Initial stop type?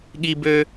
implosive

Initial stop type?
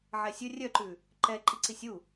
click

